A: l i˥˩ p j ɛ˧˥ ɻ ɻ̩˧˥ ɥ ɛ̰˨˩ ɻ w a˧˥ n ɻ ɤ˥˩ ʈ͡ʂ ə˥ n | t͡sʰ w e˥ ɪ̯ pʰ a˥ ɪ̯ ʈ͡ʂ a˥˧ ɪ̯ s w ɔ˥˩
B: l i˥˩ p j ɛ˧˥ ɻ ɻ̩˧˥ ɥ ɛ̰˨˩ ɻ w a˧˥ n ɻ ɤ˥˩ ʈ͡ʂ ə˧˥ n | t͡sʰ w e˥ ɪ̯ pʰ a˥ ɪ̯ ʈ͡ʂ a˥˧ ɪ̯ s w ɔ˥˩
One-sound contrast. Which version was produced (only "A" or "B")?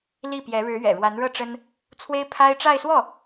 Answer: A